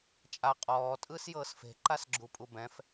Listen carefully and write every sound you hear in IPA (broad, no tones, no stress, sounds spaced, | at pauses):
t͡ʃʼ a qʼ ɔː tʼ ɯː s j ɤː s f e̤ ǃ a s ɡ͡ǁ u pʼ u b ɛ̃ f